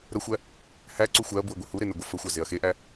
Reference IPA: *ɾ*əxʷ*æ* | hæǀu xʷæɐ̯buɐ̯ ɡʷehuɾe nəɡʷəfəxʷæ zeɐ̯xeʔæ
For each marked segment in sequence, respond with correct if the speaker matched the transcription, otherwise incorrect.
correct, correct

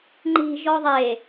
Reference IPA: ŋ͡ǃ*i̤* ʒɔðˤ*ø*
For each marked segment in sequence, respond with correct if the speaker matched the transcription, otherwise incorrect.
correct, incorrect

